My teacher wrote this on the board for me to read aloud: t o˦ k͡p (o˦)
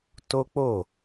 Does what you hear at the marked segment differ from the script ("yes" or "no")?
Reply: yes